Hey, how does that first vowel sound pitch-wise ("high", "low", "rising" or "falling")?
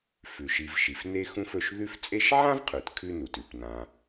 low